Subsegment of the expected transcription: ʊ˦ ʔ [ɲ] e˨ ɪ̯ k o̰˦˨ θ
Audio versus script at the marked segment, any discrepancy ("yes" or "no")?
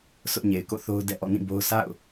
no